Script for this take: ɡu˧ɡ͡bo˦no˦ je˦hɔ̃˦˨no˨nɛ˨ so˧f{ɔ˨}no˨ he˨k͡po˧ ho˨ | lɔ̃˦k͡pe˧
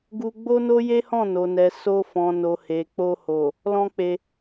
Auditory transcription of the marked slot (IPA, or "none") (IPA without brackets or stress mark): ɔ̃˨